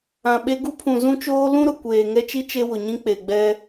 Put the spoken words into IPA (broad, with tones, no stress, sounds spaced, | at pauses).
ã˨ ɓ e˦ ɡ u˦ pʰ ũ˨ z ũ˦ t͡ʃ oː˦ l ũ˦ ɾ ʊ˨ kʷ eː˨ ŋ ɛ˦ t͡ʃ i˦ t͡ʃ e˦ w ʊ˨ ɲ ĩ˦ k͡p e˨ ɡ͡b ɛ˦